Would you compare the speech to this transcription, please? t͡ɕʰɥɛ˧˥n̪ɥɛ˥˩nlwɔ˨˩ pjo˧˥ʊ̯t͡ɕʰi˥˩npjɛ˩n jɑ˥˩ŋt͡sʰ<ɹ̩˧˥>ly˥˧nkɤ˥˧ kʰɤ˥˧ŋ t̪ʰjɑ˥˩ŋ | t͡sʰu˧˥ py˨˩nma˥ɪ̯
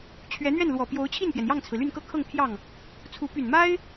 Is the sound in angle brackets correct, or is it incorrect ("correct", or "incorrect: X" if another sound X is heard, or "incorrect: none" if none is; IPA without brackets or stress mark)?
incorrect: ɹ̩˩